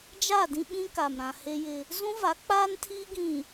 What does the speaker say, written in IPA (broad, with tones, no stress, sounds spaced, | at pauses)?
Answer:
d͡ʒ a˦˨ d ĩ˦ ɓ ĩ˦ k a˨ m ɾ ã˨ h e˦ j ɪ˦ | z ũ˦ v a˨˦ k͡p aː˦ n tʰ iː˦ ɡ ĩ˨